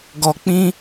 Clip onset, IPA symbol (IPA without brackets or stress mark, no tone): ɡ